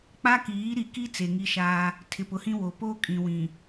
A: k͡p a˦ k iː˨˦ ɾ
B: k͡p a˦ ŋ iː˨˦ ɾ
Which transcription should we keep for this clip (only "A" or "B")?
A